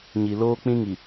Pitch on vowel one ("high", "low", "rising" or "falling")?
low